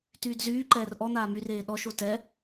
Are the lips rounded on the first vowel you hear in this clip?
yes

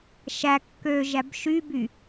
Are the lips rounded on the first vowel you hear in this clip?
no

